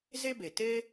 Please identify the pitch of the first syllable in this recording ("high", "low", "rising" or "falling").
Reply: high